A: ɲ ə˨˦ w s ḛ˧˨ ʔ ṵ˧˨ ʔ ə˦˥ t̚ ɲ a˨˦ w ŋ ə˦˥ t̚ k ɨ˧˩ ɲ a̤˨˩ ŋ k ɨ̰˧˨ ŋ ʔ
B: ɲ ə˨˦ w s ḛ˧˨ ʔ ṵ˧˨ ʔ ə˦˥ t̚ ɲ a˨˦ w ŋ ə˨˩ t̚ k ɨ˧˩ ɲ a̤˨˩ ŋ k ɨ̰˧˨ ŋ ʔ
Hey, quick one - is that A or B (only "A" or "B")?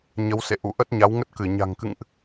A